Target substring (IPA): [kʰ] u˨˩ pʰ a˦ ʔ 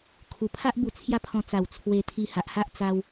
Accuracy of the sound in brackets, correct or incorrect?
correct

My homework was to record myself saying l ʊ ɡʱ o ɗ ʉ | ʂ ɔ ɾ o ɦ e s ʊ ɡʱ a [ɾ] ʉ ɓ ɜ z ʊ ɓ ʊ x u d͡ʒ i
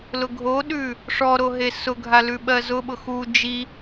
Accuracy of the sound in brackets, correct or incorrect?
incorrect: l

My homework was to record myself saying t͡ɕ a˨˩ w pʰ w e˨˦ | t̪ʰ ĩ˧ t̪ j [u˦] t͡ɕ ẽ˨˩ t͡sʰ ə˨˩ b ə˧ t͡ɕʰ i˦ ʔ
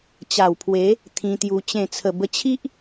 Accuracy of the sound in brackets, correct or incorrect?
incorrect: u˧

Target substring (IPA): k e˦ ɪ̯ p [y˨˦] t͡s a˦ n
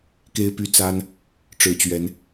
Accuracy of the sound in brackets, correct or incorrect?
incorrect: y˦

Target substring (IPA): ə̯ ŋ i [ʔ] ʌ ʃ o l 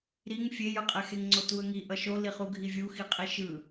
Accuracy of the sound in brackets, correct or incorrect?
correct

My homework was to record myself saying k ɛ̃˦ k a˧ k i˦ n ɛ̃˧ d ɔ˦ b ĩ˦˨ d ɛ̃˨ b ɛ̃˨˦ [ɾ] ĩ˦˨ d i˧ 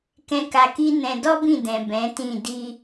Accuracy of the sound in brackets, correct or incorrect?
incorrect: t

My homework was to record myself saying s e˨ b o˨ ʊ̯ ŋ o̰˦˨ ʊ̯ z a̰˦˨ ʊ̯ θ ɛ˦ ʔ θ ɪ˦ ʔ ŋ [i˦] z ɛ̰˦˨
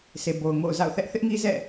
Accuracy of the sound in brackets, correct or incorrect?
correct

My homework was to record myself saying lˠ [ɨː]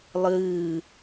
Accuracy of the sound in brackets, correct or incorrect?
correct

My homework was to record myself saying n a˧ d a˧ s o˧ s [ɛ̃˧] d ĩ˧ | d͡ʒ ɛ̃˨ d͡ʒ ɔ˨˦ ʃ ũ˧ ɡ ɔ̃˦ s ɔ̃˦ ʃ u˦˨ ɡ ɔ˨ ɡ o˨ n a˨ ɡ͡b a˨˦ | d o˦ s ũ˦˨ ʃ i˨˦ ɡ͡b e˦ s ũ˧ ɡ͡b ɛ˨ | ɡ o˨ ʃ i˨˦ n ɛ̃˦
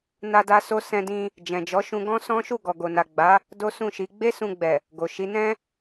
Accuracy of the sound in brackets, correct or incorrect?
correct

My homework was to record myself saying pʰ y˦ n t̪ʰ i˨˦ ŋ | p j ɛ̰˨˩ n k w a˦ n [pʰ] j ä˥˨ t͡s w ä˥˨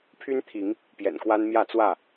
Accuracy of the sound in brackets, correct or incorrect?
incorrect: m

